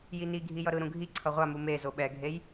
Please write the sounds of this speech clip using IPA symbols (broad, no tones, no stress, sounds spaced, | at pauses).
j i n i ɡʱ i j ʌ ɾ ɯ ɾ ũ ɡʱ i ǀʰ ʌ ʁʷ a m u m e z o ɓ ɛ ɡʱ e j